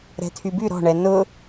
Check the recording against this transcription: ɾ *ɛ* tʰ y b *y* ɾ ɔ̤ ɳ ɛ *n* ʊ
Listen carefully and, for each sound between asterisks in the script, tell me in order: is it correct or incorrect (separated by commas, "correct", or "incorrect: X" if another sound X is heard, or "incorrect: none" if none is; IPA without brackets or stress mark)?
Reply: incorrect: ɛ̤, correct, correct